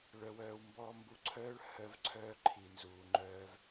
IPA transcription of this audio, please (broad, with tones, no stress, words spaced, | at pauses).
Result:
ɭœ˨wœː˨w mbɔː˧mbu˧ǀʰœː˦ɭ hœ˧vǀʰœː˧ ǃʰi˨nzuː˨ŋ͡ǃœː˧v